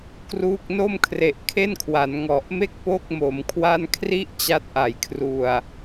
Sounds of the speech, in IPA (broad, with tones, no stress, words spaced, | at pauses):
kruː˥˩k̚ no˥˩mkʰre˨˩ʔ kʰe˥˩nkʰwa˩˦nŋɔ˨˩ʔme˥˩k̚ po˥˩k̚mo˩˦mkʰwa˥˩n kʰri˥˩ʔ t͡ɕa˦˥t̚ʔa˩˦jkʰru˨˩a̯